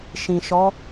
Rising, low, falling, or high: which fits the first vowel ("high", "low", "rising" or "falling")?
low